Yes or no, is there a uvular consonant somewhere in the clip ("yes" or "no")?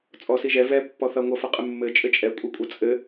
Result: yes